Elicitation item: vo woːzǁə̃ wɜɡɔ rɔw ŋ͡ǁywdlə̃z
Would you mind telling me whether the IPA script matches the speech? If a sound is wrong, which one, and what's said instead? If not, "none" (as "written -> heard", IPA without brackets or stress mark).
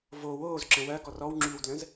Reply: none